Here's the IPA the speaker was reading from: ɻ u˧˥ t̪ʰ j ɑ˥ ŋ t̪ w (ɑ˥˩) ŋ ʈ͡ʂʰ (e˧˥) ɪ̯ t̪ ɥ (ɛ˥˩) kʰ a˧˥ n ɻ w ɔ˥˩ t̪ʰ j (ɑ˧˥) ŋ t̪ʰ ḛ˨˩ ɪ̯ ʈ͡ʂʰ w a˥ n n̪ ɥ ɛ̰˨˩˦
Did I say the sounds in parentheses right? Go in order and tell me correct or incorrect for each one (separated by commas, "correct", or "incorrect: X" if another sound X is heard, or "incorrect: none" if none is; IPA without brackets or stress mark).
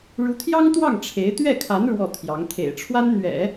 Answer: correct, correct, correct, correct